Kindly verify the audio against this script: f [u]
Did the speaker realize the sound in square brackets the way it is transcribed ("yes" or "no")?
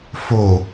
no